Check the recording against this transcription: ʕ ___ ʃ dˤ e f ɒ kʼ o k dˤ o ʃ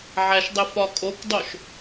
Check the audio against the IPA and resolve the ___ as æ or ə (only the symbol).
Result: æ